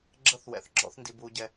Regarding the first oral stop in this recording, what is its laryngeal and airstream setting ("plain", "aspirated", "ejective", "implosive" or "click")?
click